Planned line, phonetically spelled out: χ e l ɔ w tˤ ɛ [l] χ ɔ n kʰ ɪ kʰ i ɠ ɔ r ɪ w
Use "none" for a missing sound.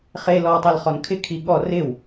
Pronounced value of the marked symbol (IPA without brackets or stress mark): l